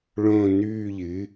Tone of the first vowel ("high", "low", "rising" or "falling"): falling